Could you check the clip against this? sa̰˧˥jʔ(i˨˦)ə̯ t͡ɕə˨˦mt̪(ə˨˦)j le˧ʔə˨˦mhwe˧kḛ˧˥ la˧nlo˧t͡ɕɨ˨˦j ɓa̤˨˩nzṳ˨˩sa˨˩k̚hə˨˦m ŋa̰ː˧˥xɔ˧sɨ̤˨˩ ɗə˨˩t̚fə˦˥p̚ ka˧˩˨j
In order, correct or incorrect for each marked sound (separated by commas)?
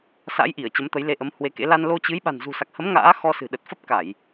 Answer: incorrect, correct